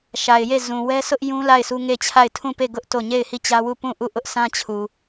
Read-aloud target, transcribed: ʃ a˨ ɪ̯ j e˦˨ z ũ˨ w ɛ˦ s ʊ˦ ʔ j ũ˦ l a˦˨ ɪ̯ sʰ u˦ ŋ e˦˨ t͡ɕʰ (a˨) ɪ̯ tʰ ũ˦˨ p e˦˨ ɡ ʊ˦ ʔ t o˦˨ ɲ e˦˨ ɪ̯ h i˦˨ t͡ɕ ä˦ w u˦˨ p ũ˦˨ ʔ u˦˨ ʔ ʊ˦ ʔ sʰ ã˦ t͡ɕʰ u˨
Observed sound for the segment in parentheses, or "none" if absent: a˦˨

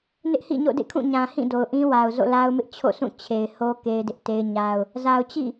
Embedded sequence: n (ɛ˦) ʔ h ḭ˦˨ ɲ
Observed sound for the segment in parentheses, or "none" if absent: ɪ˦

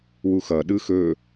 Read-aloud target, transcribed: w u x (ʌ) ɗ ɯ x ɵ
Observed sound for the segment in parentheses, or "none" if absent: ʌ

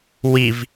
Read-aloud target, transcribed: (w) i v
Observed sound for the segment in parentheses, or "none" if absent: w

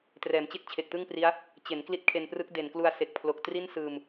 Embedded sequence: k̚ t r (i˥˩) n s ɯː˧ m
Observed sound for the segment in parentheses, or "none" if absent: i˥˩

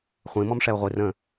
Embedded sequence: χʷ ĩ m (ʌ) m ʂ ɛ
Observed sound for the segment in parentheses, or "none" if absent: ɔ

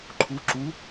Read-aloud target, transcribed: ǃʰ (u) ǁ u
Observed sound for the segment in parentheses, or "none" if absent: u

